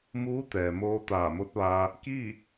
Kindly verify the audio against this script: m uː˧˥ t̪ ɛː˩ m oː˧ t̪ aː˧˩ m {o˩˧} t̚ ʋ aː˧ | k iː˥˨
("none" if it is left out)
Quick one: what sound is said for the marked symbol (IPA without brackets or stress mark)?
o˧˥